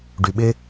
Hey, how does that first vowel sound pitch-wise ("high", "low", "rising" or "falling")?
low